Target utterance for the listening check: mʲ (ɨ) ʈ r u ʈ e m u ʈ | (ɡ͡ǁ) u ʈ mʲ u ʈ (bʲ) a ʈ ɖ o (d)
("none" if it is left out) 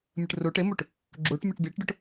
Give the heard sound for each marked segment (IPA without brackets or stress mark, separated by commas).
ɨ, ɡ͡ǁ, bʲ, ʈ